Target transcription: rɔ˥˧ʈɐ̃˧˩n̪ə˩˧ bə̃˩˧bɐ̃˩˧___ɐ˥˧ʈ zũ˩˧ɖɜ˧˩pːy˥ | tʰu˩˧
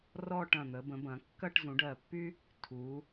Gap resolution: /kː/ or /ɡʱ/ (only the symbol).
kː